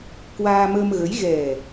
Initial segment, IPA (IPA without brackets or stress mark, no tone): k